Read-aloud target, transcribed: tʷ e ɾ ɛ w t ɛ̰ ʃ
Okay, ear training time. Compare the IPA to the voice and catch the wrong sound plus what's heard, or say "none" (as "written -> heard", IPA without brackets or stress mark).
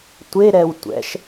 t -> tʷ